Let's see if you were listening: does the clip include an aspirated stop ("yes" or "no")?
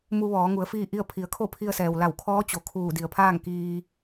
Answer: yes